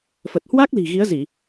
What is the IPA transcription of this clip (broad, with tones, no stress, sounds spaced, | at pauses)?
f ə˨˩ t̚ h w a˦˥ k̚ l i̤˨˩ ɣ i˨˦ ə̯ z i˧˩˨